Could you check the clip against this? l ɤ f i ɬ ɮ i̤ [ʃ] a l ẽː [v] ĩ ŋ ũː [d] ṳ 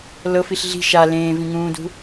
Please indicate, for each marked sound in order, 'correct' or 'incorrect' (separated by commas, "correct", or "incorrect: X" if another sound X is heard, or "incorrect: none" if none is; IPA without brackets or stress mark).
correct, correct, correct